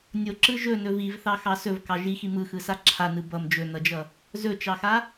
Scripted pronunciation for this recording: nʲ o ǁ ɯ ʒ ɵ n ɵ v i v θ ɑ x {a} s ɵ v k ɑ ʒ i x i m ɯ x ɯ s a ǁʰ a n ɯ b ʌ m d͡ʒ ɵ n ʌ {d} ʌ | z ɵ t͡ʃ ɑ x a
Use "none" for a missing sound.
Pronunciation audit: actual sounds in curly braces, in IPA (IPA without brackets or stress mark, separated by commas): ɑ, d͡ʒ